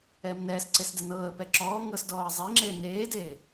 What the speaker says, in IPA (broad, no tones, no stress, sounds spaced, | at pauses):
ɛː m n ɛː s ǀ e s d ɛ n ɤː ə̯ p ɛ ǁ ɔː ŋ ɤ s d ɔː ə̯ zˤ e ŋ͡ǁ eː n eː d eː